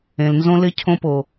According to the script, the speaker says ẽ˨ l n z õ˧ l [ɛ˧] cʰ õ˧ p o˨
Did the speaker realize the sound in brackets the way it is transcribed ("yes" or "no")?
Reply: no